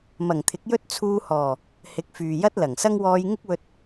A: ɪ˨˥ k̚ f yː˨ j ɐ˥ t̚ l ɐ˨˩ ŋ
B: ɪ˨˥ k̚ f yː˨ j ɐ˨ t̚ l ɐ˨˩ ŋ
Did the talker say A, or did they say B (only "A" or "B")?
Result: A